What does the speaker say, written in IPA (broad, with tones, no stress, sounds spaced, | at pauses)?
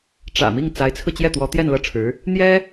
ʈ͡ʂ ä̰˨˩ m i˥˩ ŋ t͡s a˧˥ ɪ̯ t͡sʰ ɹ̩˧ t͡ɕ j ɛ˥˩ t̪ w ɔ˧˥ t̪ j ɛ˥˧ n l ɤ˥˩ ʈ͡ʂʰ ɻ̩˧˥ | n̪ j ɛ˥